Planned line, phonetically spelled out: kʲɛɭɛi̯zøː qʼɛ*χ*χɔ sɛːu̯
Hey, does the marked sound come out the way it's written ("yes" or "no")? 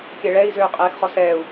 no